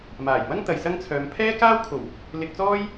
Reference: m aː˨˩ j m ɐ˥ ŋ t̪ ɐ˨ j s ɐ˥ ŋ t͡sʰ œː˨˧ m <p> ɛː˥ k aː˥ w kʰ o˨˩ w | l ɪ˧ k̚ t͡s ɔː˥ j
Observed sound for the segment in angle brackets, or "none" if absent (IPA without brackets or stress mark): pʰ